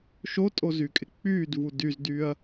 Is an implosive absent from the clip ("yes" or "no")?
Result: yes